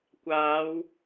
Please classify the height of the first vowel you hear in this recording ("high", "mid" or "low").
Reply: low